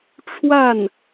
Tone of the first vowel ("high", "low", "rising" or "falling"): falling